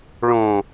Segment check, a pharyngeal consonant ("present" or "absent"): absent